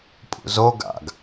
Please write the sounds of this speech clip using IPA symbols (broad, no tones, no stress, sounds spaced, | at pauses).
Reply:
pʼ ṵ z o ɡ a̰ ɡ